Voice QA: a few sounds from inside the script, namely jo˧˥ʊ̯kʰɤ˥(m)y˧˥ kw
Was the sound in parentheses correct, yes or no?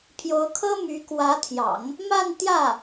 yes